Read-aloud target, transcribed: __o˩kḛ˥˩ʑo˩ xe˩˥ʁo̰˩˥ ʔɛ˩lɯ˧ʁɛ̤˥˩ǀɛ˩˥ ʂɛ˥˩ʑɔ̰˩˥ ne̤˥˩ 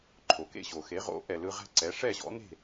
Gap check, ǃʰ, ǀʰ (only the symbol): ǃʰ